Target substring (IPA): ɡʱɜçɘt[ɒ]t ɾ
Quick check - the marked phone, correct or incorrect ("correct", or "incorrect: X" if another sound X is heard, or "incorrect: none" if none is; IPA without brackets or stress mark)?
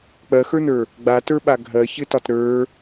correct